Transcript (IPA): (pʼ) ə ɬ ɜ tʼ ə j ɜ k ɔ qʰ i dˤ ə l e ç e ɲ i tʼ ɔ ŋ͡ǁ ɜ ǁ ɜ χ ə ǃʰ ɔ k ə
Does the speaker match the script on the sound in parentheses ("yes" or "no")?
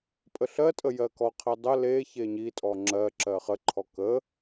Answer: yes